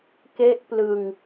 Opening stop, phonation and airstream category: plain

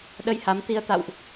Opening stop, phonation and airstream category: implosive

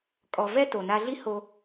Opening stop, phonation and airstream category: ejective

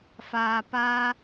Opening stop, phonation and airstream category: plain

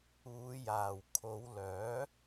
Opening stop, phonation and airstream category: aspirated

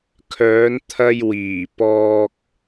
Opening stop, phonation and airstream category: aspirated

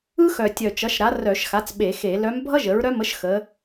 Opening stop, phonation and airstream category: plain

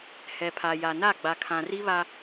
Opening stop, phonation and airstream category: aspirated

